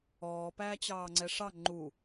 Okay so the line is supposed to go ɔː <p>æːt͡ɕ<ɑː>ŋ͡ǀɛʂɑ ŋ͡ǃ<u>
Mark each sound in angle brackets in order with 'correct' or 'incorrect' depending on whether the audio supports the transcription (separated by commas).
correct, correct, correct